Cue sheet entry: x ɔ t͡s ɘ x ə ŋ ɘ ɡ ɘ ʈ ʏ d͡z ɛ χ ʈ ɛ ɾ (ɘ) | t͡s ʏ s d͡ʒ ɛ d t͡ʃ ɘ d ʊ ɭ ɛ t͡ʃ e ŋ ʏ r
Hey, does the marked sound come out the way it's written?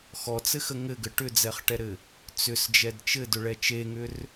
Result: yes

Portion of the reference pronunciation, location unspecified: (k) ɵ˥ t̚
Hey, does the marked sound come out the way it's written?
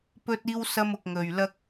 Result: no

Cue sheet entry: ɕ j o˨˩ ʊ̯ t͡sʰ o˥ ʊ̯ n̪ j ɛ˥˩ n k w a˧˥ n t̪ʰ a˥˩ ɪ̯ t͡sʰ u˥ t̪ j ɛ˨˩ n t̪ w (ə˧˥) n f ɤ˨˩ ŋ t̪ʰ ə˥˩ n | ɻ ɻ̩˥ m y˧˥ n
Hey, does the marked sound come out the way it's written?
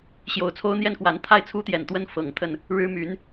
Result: no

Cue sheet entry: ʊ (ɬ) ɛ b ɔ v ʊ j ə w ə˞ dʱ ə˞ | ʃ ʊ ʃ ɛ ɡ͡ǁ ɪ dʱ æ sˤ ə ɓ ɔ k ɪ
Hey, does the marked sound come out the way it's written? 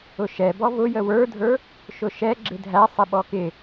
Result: no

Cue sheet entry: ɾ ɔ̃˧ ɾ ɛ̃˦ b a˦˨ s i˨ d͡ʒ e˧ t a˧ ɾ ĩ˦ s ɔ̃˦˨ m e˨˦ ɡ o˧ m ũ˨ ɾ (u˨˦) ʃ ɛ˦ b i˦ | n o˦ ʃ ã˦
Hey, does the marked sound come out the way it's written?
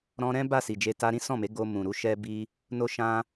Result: yes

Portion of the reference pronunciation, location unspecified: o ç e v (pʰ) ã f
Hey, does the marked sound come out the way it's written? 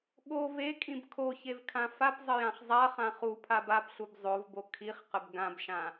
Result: no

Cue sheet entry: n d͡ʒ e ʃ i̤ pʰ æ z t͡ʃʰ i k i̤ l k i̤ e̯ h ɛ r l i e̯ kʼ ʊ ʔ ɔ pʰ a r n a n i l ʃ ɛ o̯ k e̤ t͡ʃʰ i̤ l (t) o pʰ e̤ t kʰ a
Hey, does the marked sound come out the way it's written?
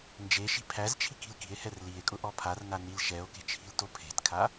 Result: yes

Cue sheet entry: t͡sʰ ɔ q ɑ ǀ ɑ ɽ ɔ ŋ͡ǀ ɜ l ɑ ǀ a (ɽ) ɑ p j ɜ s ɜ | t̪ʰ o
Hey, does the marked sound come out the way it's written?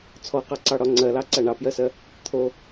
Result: no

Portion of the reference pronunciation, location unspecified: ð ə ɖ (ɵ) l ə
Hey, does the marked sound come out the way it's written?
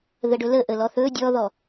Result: yes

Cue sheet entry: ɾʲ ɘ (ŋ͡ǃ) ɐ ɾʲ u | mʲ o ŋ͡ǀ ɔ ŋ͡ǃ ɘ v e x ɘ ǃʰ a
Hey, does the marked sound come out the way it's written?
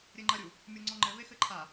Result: yes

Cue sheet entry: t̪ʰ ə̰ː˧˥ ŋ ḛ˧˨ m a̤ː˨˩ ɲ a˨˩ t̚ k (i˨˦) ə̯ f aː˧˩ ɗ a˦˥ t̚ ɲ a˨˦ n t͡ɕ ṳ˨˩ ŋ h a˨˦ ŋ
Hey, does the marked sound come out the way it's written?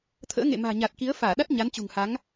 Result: yes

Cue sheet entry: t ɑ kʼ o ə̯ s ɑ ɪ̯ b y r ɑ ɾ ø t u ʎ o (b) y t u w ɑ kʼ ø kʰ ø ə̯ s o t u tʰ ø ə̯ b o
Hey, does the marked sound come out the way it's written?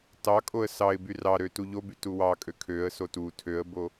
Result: yes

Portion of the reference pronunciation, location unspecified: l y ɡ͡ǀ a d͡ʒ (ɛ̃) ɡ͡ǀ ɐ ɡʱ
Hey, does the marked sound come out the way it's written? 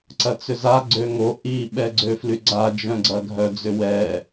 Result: no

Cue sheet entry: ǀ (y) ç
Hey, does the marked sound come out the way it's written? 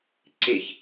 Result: no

